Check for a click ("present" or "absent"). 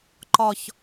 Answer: present